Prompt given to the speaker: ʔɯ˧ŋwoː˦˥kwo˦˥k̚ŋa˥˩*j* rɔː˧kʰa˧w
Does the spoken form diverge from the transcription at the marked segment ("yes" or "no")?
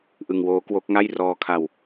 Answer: no